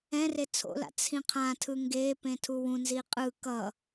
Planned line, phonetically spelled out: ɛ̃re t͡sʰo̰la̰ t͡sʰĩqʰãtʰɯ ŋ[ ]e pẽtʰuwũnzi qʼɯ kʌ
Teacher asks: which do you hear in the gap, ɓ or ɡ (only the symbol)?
ɡ